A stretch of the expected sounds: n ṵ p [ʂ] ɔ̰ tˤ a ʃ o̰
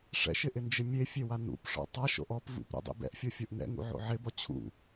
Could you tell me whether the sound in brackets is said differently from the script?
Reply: no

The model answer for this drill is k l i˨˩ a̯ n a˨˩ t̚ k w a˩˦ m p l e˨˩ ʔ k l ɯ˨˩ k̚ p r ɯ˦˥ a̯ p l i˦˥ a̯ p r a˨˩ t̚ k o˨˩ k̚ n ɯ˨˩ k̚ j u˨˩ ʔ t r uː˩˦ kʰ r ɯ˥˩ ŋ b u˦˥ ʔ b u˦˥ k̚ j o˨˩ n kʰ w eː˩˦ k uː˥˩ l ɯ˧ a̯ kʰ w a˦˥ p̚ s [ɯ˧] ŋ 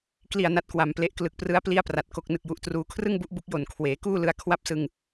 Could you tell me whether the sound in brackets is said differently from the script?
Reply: no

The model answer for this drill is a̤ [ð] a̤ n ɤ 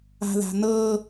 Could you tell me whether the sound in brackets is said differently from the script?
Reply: no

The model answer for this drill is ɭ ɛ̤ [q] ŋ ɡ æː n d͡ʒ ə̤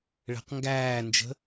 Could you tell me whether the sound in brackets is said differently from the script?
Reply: no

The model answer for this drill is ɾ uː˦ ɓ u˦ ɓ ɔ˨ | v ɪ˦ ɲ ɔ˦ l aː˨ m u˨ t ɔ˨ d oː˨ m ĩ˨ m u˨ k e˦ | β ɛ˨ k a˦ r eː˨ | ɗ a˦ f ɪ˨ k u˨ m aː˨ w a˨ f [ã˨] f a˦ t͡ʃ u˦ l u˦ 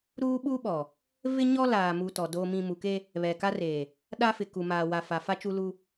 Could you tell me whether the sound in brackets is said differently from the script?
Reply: yes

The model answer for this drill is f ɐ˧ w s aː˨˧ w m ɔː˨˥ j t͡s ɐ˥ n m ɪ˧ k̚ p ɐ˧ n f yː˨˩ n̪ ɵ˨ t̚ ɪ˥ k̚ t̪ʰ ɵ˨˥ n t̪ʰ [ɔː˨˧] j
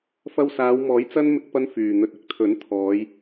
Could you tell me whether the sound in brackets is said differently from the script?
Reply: no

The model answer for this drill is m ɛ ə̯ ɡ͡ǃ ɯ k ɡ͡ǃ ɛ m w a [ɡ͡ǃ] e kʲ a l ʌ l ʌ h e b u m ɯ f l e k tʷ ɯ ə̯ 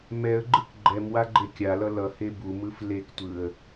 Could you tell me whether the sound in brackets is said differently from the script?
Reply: no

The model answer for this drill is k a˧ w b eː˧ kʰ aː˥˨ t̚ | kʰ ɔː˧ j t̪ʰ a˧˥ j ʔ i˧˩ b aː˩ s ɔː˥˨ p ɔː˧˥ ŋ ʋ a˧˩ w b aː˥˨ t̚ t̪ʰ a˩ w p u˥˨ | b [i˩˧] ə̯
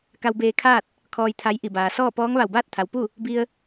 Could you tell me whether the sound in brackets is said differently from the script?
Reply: yes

